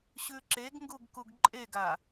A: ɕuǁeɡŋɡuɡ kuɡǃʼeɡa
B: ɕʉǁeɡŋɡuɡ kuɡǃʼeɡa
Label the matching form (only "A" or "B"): B